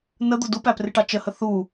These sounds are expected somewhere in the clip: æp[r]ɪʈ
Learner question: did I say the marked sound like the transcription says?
yes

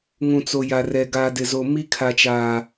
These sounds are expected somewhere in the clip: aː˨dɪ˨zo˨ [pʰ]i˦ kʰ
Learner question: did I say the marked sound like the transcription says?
no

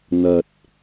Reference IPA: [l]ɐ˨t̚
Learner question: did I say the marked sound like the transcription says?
no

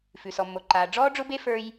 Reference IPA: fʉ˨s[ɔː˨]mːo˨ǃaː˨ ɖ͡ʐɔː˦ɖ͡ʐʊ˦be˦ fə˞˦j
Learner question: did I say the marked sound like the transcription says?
no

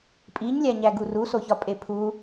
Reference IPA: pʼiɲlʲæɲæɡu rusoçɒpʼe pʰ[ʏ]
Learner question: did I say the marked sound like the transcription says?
no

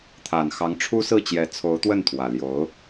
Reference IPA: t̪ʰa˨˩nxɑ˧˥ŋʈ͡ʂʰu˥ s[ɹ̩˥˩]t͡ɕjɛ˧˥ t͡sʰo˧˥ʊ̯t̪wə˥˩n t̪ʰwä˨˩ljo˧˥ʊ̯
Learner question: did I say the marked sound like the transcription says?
yes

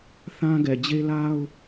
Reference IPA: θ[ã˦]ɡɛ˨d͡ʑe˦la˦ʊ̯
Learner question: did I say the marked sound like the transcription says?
yes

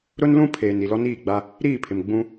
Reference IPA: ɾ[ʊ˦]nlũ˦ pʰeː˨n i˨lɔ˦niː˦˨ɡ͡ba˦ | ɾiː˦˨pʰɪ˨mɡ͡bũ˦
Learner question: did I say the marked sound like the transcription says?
yes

